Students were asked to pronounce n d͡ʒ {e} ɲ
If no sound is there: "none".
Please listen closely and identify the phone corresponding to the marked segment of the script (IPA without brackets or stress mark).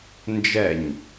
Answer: ɛ